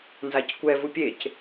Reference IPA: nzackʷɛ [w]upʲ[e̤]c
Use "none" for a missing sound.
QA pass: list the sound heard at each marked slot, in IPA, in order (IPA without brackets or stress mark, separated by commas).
v, e